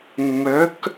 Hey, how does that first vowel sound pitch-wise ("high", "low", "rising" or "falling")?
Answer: rising